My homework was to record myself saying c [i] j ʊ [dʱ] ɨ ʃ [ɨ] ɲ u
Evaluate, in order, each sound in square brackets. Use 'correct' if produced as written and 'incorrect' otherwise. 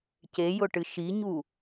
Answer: incorrect: e, incorrect: ʈ, incorrect: i

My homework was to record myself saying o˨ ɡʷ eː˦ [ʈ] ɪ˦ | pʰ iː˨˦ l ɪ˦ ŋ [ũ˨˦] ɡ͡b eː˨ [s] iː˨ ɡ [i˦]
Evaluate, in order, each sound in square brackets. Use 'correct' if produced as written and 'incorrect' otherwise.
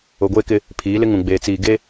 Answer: incorrect: k, incorrect: ũ˨, incorrect: t͡s, incorrect: e˦

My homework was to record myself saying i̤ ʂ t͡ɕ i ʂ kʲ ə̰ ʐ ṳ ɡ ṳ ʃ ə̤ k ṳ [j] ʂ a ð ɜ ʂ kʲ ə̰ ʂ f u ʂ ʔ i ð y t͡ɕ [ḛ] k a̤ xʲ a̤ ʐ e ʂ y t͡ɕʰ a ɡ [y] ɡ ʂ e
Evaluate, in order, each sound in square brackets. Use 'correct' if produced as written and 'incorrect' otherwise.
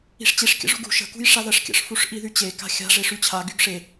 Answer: correct, incorrect: e, correct

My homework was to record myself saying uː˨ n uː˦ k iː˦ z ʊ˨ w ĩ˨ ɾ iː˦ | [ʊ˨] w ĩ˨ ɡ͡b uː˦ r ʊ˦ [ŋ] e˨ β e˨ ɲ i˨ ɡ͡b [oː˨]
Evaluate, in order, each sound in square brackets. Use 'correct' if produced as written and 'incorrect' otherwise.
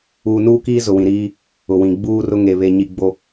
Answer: correct, correct, incorrect: o˨

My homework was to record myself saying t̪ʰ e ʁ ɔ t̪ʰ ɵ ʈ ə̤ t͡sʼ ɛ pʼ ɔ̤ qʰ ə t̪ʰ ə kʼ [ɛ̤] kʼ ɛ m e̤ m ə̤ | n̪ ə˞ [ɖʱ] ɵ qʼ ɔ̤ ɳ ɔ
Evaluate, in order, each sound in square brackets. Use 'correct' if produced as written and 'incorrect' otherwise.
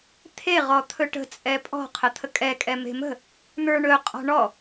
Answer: incorrect: ɛ, incorrect: ɳ

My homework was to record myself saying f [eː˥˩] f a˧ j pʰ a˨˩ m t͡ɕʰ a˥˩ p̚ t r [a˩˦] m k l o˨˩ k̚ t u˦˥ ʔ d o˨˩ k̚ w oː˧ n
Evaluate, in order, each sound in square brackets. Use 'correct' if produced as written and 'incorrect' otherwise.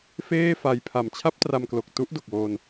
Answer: correct, incorrect: a˧

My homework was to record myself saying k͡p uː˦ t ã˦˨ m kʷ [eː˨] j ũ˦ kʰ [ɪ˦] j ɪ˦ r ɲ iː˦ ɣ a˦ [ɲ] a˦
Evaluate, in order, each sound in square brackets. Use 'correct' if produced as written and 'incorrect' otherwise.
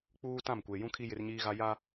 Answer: incorrect: e˨, incorrect: i˦, incorrect: j

